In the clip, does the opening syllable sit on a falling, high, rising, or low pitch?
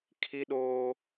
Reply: high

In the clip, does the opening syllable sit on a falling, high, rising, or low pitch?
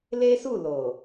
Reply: high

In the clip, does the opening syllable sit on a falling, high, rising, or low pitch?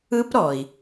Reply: high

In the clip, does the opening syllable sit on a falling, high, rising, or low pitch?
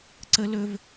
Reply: high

